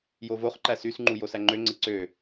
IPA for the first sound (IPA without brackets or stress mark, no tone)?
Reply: j